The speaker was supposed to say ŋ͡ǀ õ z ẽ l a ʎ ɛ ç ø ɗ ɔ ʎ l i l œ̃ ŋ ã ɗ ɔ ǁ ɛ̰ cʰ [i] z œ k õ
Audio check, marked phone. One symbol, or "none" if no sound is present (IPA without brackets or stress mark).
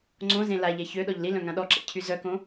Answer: y